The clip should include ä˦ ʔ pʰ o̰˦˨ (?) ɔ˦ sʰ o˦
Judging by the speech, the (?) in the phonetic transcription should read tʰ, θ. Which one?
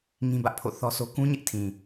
θ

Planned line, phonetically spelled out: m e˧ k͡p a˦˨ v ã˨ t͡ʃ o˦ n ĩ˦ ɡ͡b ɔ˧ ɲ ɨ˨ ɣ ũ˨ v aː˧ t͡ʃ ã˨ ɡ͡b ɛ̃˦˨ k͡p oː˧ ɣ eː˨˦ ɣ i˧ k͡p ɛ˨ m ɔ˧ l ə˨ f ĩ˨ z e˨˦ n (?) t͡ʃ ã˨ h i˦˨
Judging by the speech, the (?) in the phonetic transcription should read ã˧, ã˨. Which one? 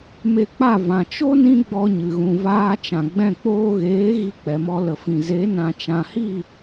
ã˨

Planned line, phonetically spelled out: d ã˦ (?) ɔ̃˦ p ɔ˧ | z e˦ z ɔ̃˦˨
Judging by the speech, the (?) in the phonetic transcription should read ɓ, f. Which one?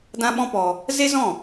ɓ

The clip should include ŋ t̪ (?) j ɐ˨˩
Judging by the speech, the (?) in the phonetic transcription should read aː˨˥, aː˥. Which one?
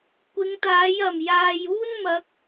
aː˨˥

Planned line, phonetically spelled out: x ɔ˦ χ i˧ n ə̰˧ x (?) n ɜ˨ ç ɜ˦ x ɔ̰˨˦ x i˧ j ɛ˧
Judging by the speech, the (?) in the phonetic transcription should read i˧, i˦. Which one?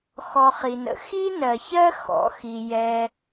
i˦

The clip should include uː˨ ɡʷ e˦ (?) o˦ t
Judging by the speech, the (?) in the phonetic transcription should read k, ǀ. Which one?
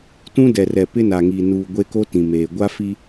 k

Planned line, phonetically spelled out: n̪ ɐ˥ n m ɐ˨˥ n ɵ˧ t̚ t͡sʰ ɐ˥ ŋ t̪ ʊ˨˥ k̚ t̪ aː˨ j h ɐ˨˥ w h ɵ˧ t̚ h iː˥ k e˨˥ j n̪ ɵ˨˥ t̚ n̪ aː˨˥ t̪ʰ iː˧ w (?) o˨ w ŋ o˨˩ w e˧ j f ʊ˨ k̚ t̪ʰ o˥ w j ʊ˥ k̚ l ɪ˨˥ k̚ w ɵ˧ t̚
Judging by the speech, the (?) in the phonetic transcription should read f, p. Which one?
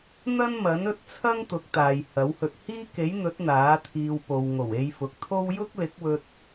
p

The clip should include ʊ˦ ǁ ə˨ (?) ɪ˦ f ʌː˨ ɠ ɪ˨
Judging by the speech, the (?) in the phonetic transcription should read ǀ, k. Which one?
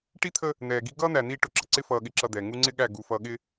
ǀ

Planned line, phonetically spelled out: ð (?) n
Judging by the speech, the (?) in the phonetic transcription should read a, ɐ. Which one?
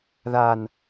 a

